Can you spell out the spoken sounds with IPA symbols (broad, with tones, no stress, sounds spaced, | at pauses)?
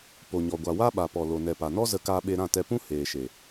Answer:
p o˨ ɲ ɔ˨ ɡʷ a˨ w a˦ ɓ a˨ p ɔ˨ l o˨ n ɛ˨ p a˨ n ɔ˦ z ə˧ k aː˧ ɓ e˧ ɾ ã˦˨ t ɛ˧ p ũ˦ h eː˨ ʃ e˨